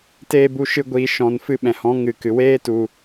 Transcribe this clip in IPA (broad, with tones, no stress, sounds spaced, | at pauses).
t eː˧ b u˧ ʃ ɨ˧ ɡʷ iː˨ ʃ ɔ̃˨ n f ɨ˧ ɓ ɛ̃˨ h ɔ̃˨˦ ŋ ɨ˨ k ɨ˨ w eː˦ t u˧